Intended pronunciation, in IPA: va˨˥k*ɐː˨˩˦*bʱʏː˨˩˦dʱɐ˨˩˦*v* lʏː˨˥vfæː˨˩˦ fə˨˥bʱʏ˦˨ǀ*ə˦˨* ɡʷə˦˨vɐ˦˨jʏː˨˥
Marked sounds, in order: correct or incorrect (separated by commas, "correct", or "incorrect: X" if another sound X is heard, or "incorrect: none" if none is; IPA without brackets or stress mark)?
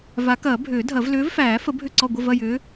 correct, correct, incorrect: ɔ˦˨